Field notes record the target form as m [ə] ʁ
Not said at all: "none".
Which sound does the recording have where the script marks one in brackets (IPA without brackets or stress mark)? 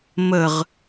ə